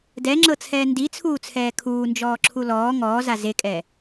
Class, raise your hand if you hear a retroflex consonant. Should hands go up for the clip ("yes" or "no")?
no